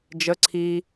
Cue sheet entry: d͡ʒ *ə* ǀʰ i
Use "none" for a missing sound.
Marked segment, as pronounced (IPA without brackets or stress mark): ə